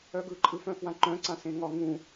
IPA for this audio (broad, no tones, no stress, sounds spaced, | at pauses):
œ ɡ ɯ ǃʼ ɯ f œ̃ f w ã ǃ œ̃ ǀ ã s ẽ ŋ ɒ ŋ ũ